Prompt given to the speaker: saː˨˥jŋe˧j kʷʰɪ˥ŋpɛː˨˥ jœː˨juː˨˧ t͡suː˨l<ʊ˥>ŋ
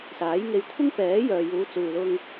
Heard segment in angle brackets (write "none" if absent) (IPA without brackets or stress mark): ʊ˧